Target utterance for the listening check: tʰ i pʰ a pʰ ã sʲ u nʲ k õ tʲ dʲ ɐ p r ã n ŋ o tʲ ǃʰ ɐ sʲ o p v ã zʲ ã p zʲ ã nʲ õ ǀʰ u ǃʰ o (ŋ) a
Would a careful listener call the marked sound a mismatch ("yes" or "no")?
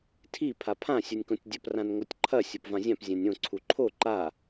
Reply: yes